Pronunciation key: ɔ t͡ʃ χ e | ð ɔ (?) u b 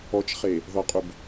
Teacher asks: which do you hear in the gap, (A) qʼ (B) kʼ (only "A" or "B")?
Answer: A